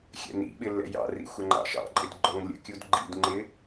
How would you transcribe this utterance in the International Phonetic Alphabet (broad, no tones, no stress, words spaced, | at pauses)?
xʲɛ̰nḭɓɪ lːɛ̰jɑ̰rḭ xʷɛŋ͡ǃɑ̰ʃɑ̰ǃʼɪd ɡ͡ǃɔŋlʲə̰kʲud ɡ͡ǃḭdŋ͡ǃɪ